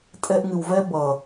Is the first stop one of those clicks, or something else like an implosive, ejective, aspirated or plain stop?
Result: ejective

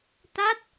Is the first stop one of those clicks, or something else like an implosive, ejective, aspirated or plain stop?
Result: plain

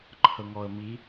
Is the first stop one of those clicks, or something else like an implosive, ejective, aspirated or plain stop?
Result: click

